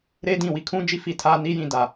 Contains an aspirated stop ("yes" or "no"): yes